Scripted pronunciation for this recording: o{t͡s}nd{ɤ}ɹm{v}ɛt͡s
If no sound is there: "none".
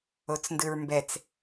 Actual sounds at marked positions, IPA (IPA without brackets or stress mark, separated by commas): t͡s, ɯ, b